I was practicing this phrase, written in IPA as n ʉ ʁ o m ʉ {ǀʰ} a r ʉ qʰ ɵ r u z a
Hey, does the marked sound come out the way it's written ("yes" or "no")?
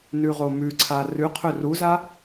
yes